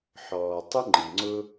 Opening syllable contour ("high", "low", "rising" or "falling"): low